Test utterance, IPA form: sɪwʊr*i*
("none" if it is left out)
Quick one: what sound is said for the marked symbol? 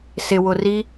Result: i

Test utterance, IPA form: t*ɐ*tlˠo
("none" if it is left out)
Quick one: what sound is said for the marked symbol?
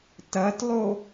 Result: ɐ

